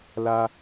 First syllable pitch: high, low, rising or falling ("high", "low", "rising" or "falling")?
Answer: high